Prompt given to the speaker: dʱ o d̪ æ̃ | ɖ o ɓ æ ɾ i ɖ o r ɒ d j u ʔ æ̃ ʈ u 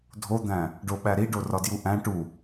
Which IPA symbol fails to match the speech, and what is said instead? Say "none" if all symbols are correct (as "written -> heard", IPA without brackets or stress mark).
none